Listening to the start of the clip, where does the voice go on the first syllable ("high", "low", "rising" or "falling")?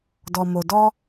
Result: low